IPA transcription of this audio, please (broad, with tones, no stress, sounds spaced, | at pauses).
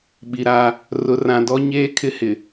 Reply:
ɓ i˨ ɾ aː˦ | r ʊ˨ r ã˨ d ɔ˦ ɲ eː˦ kʰ ɪ˦ h ɪ˨